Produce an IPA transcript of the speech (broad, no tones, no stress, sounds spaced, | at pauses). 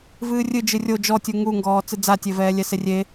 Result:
v ɨː rʲ ɨ d͡ʒ ɨ rʲ o d͡ʒ ɔ tʲ u ŋ u ŋ ɡ ɔː t͡s ɨ d͡z a tʲ e v ɛː lʲ ɛ s e rʲ e